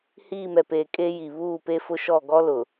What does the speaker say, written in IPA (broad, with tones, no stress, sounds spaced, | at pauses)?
h iː˦˨ m ɛ˨ p eː˨ kʼ e˦ j i˨ β uː˦˨ p e˦ f ʊ˦ ʃ ɔ˦˨ ɡ ɔ˦ l ʊ˨